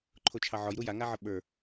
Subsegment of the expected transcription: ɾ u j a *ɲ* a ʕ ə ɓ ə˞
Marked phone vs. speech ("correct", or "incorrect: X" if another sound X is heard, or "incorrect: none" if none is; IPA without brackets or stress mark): incorrect: ŋ